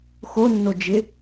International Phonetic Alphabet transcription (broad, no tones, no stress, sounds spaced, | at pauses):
x o nː o d͡ʒ ɪ